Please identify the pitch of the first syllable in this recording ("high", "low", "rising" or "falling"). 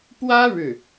high